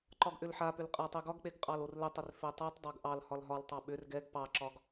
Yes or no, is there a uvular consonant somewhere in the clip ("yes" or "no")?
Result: yes